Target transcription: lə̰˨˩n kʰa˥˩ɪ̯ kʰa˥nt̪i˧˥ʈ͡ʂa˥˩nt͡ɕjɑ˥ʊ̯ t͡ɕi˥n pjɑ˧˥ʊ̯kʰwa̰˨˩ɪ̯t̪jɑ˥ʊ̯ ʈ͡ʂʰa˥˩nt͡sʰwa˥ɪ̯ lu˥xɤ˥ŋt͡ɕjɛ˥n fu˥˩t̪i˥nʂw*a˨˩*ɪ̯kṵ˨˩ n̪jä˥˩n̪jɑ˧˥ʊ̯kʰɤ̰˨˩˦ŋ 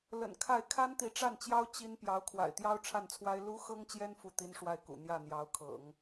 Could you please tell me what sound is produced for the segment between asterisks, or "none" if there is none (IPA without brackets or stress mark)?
a˥˩